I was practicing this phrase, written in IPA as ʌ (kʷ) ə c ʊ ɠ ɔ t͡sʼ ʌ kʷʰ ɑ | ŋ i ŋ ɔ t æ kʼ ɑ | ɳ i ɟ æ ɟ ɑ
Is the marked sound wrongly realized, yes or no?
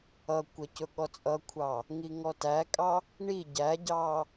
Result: no